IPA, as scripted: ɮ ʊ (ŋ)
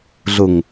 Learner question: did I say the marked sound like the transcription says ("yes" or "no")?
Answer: yes